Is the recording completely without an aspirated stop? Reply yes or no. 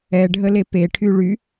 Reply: no